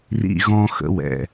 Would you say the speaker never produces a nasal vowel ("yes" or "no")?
no